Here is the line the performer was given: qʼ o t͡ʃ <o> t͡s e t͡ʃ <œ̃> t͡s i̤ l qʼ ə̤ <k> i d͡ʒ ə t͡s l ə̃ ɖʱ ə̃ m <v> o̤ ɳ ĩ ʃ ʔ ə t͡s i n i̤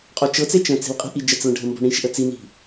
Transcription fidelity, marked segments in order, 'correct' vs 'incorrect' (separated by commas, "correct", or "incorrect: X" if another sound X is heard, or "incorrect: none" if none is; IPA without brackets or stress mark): incorrect: ɤ, incorrect: ə̃, incorrect: ʔ, incorrect: b